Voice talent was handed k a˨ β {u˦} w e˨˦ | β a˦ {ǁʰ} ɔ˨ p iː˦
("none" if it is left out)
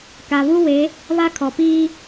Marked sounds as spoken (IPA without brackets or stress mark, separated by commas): u˦, kʰ